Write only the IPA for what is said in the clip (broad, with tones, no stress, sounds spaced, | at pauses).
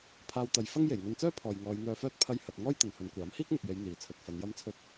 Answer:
pʰ aː˧ w t̪ ɐ˨˧ j f ɐ˥ ŋ j e˨˩ j ŋ ɵ˧ n t͡s œː˥ pʰ ɔː˨ j ŋ ɔː˨˧ j n̪ œː˧ f œː˥ t̚ pʰ ɐ˥ j h ɐ˨ t̚ ŋ ɔː˥ j t̪ ɐ˨ n h ɵ˨˧ n kʷ aː˨˥ m h iː˥ k̚ m ʊ˨ k̚ j e˨˧ j n̪ iː˨ t͡sʰ ɵ˧ t̚ f ɐ˨˧ n j ɐ˥ m t͡sʰ ɵ˥ t̚